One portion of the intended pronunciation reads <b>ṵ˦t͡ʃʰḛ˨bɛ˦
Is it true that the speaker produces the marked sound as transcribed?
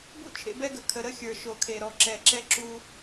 yes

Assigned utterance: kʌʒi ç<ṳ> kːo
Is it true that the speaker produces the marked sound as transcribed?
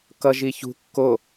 yes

